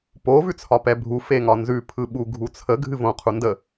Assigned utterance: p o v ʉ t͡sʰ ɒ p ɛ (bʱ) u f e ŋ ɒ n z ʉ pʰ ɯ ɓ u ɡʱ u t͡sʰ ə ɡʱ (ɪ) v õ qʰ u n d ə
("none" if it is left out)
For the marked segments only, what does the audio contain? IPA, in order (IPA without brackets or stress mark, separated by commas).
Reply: bʱ, ɨ